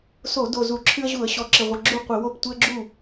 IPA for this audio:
s o˧˩˧ d o˨˩ z u˧˩˧ ǁʰ ɨ˦ ə̯ ʑ u˧˩˧ ə̯ ɕ ɔ˨˩ ǁ ɪ˨˩ ʁʷ ə˨˩ ɡ͡ǁ u˥˩ qʷ ɪ˧˩˧ w o˥˩ p tʷ ɪ˦ ə̯ ɡ͡ǁ u˥˩

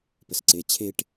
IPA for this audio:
p ə s ǀ e t͡ɕʰ e ʈ

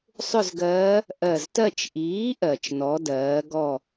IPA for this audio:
sˤ ʏ˥˨ z ɡ ɜː˧˥ | ʔ ɜ˧˩ z t ɜ˥˨ t͡ʃ ʔ iː˩˥ ʔ ɜ˩ t͡ʃ n ɔ˩˧ d ɜː˩˧ ɡ ɔ˥˨

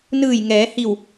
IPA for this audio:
n ɯː˧˩ j ŋ ɛː˩˧ h i˧˩ w

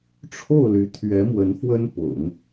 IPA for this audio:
ʈ͡ʂʰ o˥˩ ʊ̯ l y˧˥ t̪ʰ ɥ ɛ˧˥ m w ə˧˥ n f w ə˥ n p ʊ̰˨˩˦ ŋ

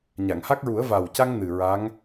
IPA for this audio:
ɲ a˨˩˨ ŋ h a˦˥ k̚ ɹ u˨˩˦ ə̯ v a˨˩ w c a˧ ŋ n ɨ˨˩ ɹ a˧˥ ŋ

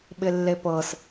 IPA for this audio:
ɓ ɪ lː e p ɤ s

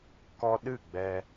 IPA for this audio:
k ɔ˧ ɗ ɨ˦˨ ɡ͡b ɛ˧

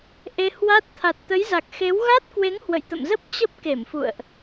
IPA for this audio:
ʔ e˧ h w a˦˥ t̚ t̪ʰ a˨˩ t̚ t̪ ə˨˦ j z a˨˩ k̚ x e˨˦ w ɣ a˦˥ t̚ k w e˨˦ ŋ h w ə̰˧˨ j t̪ ə̰˧˨ m z ə˦˥ p̚ t͡ɕ ə˦˥ p̚ k e˧˩ m f ṵ˧˨ ə̯ ʔ

